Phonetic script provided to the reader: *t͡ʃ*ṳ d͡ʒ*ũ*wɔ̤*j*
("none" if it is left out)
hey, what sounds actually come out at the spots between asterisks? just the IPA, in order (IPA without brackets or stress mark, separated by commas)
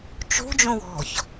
t͡ʃ, ũ, ç